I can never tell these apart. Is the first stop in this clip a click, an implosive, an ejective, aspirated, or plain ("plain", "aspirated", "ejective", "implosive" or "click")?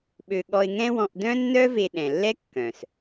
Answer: implosive